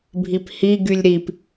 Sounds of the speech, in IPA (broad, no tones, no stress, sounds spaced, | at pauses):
bʱ i p h i ɡ y lʲ ɾ i p